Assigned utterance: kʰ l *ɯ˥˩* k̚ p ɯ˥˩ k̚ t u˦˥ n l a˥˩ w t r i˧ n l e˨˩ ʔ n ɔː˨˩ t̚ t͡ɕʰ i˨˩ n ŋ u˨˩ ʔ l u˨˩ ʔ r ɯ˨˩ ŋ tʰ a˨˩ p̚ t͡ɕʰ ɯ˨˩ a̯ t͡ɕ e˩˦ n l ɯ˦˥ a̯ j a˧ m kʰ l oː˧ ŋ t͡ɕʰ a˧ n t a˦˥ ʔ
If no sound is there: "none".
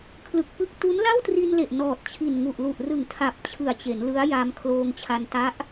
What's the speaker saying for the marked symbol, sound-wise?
ɯ˨˩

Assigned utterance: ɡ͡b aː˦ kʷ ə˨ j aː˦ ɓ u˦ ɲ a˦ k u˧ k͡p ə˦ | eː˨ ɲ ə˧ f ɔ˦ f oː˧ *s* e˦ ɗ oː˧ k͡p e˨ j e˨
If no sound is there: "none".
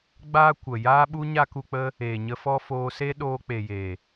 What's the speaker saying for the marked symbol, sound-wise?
s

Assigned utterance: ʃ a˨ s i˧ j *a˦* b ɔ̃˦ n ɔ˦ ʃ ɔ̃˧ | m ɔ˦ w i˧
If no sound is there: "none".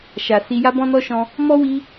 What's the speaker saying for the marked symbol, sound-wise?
a˦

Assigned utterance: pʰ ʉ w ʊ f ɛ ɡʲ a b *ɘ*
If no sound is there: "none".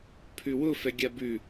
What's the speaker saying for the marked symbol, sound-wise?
ʉ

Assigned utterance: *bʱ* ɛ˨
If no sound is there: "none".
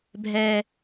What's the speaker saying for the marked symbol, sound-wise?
bʱ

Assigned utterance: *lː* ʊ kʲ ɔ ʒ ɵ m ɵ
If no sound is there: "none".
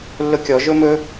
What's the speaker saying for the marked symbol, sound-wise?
lː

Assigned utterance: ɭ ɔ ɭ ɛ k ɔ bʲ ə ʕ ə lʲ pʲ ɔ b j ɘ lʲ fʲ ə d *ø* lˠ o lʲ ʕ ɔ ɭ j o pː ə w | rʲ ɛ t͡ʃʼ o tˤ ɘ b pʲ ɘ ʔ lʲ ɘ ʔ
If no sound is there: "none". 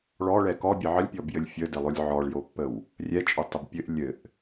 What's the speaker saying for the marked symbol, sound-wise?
ɘ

